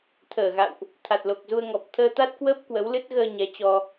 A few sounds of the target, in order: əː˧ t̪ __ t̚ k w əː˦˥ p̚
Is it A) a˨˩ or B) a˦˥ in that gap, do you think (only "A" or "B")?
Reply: B